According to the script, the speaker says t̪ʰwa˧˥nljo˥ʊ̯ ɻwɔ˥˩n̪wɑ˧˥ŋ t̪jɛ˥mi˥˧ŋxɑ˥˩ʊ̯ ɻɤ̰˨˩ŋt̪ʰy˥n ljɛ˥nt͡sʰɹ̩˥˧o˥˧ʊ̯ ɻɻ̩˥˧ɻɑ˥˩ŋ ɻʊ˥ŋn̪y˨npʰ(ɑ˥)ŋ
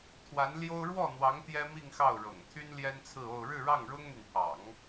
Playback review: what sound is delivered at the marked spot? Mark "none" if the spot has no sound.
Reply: ɑ̰˨˩˦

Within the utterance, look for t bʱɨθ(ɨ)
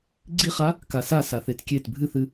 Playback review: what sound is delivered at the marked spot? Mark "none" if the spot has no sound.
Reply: ɨ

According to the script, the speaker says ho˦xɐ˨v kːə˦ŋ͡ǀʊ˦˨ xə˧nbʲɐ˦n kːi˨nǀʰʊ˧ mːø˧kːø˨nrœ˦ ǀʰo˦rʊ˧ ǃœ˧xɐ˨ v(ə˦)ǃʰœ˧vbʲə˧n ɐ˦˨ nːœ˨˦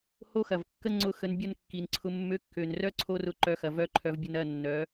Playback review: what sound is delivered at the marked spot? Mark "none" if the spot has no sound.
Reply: œ˦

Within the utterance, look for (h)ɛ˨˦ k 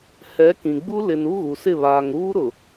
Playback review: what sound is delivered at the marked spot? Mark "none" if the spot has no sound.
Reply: h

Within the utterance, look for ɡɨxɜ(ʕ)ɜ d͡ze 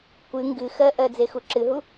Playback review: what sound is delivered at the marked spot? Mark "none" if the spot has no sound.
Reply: ʔ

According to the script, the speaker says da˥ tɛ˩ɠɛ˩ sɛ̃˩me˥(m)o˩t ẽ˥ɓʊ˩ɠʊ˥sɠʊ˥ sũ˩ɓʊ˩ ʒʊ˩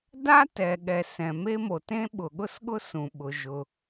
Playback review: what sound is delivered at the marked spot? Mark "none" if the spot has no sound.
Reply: m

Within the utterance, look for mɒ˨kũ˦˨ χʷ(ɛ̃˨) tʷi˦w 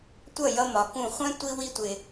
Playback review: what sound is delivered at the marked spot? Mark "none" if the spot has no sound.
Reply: ɛ̃˦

